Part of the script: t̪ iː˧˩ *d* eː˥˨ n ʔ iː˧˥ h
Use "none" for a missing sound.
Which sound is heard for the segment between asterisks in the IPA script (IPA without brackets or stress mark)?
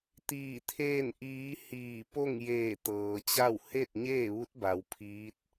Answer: t̪ʰ